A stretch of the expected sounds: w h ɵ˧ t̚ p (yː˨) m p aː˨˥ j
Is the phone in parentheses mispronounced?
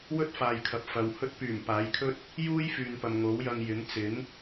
yes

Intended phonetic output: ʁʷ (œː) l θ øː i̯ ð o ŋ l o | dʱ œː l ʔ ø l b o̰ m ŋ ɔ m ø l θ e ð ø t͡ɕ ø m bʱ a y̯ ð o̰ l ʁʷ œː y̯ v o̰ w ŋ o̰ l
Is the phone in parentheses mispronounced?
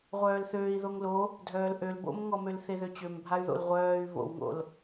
no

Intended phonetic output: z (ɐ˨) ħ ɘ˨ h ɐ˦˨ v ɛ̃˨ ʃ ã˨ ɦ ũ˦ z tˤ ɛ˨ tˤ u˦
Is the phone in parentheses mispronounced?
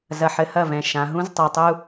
no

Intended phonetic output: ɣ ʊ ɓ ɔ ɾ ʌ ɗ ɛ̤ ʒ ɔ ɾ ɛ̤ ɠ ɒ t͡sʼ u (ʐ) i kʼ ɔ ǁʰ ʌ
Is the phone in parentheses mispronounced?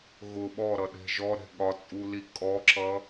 yes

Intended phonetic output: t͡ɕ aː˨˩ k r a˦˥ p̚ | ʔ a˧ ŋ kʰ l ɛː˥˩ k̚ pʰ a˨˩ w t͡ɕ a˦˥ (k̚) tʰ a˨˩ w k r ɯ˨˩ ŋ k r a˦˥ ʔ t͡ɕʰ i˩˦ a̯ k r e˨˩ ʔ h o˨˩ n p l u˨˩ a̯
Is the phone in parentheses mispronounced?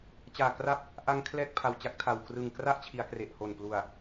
no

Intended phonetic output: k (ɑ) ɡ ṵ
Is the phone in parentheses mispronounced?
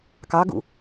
no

